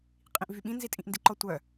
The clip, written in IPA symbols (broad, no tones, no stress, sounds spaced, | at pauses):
qʼ ĩ ʔ v y ɓ ĩ n z i tʼ ĩ ʔ n d i ǃ ɔ tʷ œ